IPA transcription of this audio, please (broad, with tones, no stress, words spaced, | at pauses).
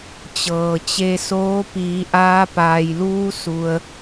t͡ɕɤː˩t͡ɕe˧soː˧˥ piː˩˧ʔaː˧paː˩jluː˧ su˩ə̯